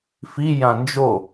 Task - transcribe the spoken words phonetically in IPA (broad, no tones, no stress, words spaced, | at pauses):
fi jãnd͡ʒo